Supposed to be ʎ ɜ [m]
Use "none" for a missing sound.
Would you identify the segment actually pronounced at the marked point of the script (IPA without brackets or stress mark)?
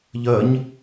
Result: ɲ